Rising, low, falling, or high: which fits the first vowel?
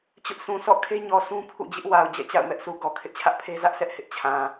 high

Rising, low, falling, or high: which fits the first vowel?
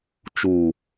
falling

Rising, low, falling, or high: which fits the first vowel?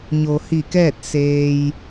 low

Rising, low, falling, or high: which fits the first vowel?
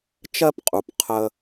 high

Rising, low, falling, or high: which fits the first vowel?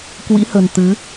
rising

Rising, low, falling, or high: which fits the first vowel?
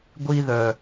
high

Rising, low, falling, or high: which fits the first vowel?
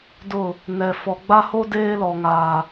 falling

